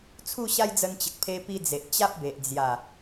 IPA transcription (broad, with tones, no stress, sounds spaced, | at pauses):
t͡sʰ u˥˧ ɕ a˦ j d͡z ə˧ n t͡ɕ ə˨ k̚ pʰ e˧ p i˧ d͡z e˨ ʔ t͡ɕ a˦ p̚ b e˨ ʔ d͡z j a˨˩